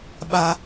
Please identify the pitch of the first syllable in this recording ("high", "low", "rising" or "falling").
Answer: low